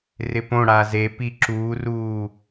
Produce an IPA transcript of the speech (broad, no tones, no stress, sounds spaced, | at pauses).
r ɪ p õ ɽ a z e p i ǁ uː r uː